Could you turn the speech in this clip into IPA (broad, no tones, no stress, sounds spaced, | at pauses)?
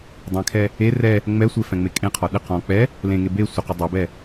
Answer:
dˤ ɛ̃ kʰ ɛ | e r ɛ | ŋ͡m ɛ sʷ e f ɛ̃ ŋ͡m e kʼ ẽ qʰ ɔ ɗ ɪ q ɔ̃ k͡p ɛ | l ẽ ŋ e b e sʷ ɪ q ɪ dˤ ɛ b ɛ